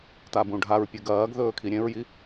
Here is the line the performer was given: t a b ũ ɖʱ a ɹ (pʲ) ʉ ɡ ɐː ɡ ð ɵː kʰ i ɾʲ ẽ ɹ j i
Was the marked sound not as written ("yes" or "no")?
no